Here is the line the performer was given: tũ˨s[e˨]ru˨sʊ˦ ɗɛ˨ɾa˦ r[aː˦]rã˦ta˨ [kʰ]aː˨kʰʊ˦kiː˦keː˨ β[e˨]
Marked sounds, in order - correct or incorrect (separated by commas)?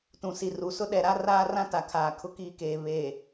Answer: incorrect, correct, correct, correct